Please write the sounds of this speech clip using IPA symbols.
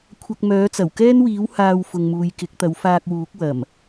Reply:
kʷʰ ɐ˧ k̚ m œː˨˥ t͡s ɐ˨˩ w k ɛː˥ n w iː˨˥ w h aː˧ w f ʊ˨ ŋ m uː˨ j k ɪ˨˥ k̚ t̪ ɐ˨˥ w f aː˧ k̚ w uː˨˥ k̚ w ɐ˨˩ m

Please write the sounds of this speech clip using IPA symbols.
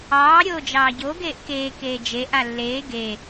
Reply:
ɑː ɾʲ oː d͡ʒ ɑː ɟ o ɡ eː ʔ k eː k eː d͡ʒ e ʔ a lː eː ɡ e

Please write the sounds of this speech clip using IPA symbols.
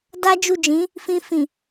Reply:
d a˦ d͡ʒ u˦˨ d͡ʒ ĩ˨˦ | f ĩ˧ f ĩ˨

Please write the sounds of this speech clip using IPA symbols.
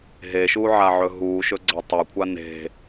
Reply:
ɦ e ʃ u ʕ a ʕ ɵ ɦ u ʃ ɵ ɡ͡ǀ a tˤ ɐ kʷʰ a n e̤

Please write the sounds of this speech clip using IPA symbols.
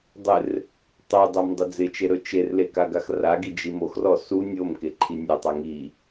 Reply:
dˤ ɪ r | tˤ o dˤ a m dˤ ɪ d͡z ɪ t͡ʃ e ɾ ɵ t͡ʃ e r l e k a ɡ a x r a ɡ i d͡ʒ i m o x r ɔ s u nʲ o m k e ǃʰ i nʲ ɵ tˤ a ŋ i

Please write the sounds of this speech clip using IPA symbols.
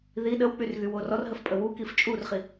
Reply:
ð i ɗ ə w k͡p y r ɣ y w o r ɔ r ɦ ə f pʼ ə w u k i f t͡ʃʼ u r χ i

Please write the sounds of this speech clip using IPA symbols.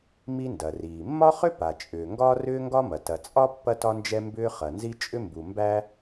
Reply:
m i˥ n d ɐ˩ r iː˩ mː ɒ˥ χ ʏ˥ p a˩ t͡ʃʼ ʏː˩ ŋ ɡ ɒː˥ r ʏː˥ ŋ ɡ ɒ˥ m ɐ˩ t ɐ˩ t͡sʼ ɒ˥ pː ɐ˥ t ɒ˥ n d͡ʒ ɛ˥ m b ʏː˥ χ ɐ˩ n z i˥ t͡ʃʼ ʏ˥ m b u˩ m b æ˥

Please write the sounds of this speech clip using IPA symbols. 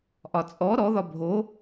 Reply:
ʔ ɒ t͡sʼ ɔ ɾ ɔ ð ɒ bʱ o

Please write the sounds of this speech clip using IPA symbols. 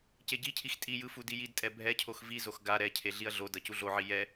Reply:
c e ɟ i cʰ i x tʼ i j ɯ f u d i j i d tʼ ɛ bʱ ɛ cʰ o x v i z o x ɡ a ɾ ɛ cʰ e ɮ i ɐ̯ ɮ o d ʌ c u ɮ o ʕ i j ɛ

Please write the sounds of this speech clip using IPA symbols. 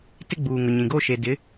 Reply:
t ɪ˦ ɡ͡b uː˨ ŋ ʊ˨ ɲ ĩ˨ ɡ oː˦ ʃ e˨ d ɪ˨˦

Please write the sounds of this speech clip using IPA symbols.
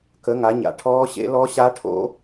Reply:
k ə˨˦ ŋ a˨˦ ɲ a̰˨˦ ʈʰ ɔː˦˥ ɕ ḛ˦˥ l ɔ˦˥ ɕ a˦˥ ʈʰ o̰˦˥

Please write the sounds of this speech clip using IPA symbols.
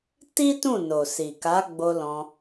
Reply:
t i˦ t ũ˦˨ n o˨ s i˨ k a˨˦ ɡ͡b o˧ l ɔ̃˧

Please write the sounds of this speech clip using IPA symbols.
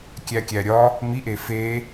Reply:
kʲ æ kʲ æ ɾʲ ɒ | m i ʔ e f e

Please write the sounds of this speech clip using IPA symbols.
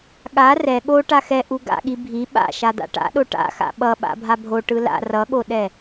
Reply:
ɠ a r ɛ ɠ o ʈ a x ɛ ʔ u ɡ a̰ ɠ i bʱ i ɓ a̰ ʃ a d̪ a̰ ʈ a̰ ɗ o ʈ a̰ x a̰ ɓ ʌ ɓ a̰ bʱ a bʱ o ʈ ɯ l a̰ r ʌ ɠ o ɗ ɛ

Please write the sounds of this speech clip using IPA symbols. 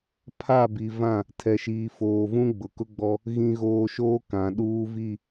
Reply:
pʰ a˦˨ b i˨ v ã˦˨ | tʰ ɛ˨ ʃ iː˨ f oː˨ v ũ˦ ɡ͡b ʊ˨ k ʊ˦ ɡ͡b ɔ˦ | ɣ ĩ˦ ɣ oː˦ ʃ oː˦ k ã˨ ɗ uː˦ v i˦˨

